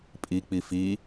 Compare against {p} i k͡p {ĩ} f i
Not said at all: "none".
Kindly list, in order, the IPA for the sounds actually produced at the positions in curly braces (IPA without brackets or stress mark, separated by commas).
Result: pʼ, i